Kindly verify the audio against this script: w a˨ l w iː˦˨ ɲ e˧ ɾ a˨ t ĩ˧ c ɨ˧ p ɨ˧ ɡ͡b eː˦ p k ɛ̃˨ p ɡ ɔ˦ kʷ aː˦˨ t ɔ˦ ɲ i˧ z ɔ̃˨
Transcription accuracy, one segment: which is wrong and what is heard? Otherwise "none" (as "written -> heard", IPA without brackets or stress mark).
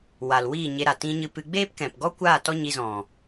c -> ɲ